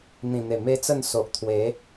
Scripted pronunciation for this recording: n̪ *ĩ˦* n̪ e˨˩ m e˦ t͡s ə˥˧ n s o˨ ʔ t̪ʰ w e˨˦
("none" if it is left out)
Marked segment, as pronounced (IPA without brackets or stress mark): ĩ˨˩